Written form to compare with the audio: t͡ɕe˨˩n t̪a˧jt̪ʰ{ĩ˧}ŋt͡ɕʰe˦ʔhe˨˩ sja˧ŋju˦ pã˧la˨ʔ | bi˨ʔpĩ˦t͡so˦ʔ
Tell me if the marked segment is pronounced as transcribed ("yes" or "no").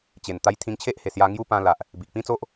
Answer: yes